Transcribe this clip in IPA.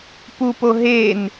p u p o ɦ e n

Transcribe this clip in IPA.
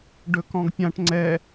ɖ ɵ k ɔ̃ ɡ pʲ ã ʈ ŋ͡ǀ ɛ

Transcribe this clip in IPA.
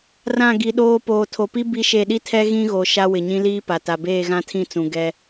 r ã˦˨ ɡ i˨ ɗ oː˦ p oː˨ tʰ o˨ p i˦ b i˦ ʃ e˦˨ ɗ i˦ tʰ ɛ˦ ɣ ĩ˦ ɣ o˨ ʃ a˦ w ɪ˨ ɲ ĩ˦ l iː˦ p a˨ t a˨ b eː˦˨ ɣ ã˦ tʰ ĩ˦˨ t͡s ũ˨ ɡ ɛ˦

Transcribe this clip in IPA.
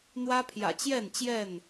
n̪ w ä˦ pʰ j ä̰˨˩ t͡ɕ j ɛ˥˨ n t͡ɕ j ɛ˥˨ n

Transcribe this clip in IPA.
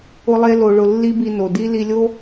ʊ˦ lˠ e˦ l o˧ ɭ ʊ˧ lː i˦ b i˧ n o˨ d i˦ l i˧ lʲ o˦

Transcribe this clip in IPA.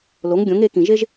l o˩˥ ŋ ɡʲ õ˩˥ ŋ e˩˥ k ĩ˨ ʒ e˥ ʒ

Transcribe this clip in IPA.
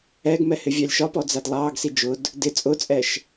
ɛ ɡ m ɛ h ɪ vʲ ɑ lʲ ʃ ɒ p ɔ d͡z æ d lˠ ɑː ɡ s i d͡ʒ ʊ d | d ɪ t͡sʼ ʊ t͡sʼ ɛ ʃ

